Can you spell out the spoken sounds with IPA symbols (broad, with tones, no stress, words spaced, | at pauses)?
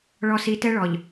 ɭɔ˨si˨ tɛ˦ɭɔ˨ʎ